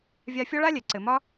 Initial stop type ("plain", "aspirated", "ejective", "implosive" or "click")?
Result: click